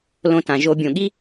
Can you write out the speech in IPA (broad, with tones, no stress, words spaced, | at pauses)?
lõ˧tã˨ʒo˧ bʲõ˨ɠi˦